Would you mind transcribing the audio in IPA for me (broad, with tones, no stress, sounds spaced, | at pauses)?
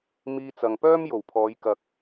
m iː˧ t͡s ɐ˨ ŋ p œː˥ m j o˨˩ w pʰ ɔː˨˧ j k ɐ˨ k̚